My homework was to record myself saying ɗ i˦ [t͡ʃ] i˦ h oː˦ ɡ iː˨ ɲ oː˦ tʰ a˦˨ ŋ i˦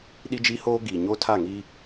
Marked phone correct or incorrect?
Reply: incorrect